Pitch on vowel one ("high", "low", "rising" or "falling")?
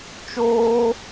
high